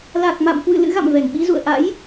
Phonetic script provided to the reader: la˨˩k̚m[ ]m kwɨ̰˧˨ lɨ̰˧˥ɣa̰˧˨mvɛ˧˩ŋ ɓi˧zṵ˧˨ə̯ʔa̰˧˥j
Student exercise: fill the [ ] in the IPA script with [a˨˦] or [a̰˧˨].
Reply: a̰˧˨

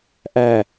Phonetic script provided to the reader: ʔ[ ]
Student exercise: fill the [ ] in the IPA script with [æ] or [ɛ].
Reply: æ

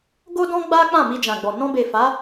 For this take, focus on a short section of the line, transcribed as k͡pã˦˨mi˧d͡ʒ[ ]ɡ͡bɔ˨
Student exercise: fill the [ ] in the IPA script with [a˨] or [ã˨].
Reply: ã˨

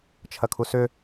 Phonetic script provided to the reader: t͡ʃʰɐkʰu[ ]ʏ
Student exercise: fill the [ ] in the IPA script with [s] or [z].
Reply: s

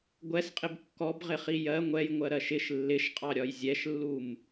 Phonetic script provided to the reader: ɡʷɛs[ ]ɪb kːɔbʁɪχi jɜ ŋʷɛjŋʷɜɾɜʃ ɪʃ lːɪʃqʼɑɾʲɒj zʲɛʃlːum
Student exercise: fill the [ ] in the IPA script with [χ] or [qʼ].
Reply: qʼ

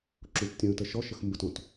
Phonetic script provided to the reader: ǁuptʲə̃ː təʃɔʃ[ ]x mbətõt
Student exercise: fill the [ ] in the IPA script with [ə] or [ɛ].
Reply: ə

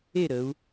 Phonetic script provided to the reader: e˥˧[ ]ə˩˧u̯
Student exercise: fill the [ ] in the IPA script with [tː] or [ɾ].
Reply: ɾ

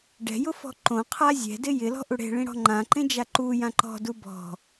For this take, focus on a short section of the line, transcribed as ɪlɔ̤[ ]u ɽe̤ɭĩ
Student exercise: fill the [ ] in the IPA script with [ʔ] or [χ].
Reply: ʔ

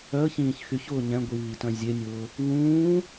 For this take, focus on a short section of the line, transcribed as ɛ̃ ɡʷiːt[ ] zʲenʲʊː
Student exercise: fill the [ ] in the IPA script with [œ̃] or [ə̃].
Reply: œ̃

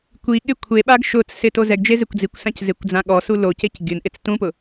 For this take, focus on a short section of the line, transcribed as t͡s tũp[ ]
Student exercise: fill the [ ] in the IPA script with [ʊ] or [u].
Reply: ʊ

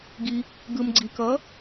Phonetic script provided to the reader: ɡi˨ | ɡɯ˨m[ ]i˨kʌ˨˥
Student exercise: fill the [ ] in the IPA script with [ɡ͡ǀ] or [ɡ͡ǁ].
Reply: ɡ͡ǀ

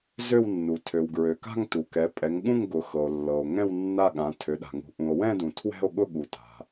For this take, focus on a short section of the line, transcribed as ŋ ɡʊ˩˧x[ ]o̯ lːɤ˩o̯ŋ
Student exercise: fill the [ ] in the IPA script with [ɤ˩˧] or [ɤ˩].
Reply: ɤ˩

